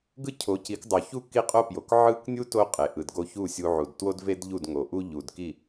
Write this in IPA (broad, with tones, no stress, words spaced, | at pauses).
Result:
ɡɯ˥cʰo˩˥ci˩˥k dˤo˩çu˥˩ ki˥qʼo˥pjo˩k ʕɯ˥k nʲu˥ to˥ qʼe˩ ʔɯ˩dɡo˧çu˥˩ sʲu˧ ʕu˩dtwo˥d ve˥dʎu˥˩dŋo˩ʔu˥ ʎu˩d ki˥˩